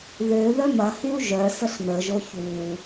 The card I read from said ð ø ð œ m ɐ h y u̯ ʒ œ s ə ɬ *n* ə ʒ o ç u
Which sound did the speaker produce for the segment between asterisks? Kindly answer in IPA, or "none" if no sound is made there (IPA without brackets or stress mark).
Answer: n